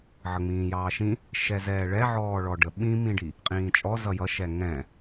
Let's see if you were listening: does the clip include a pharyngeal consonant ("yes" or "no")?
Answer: yes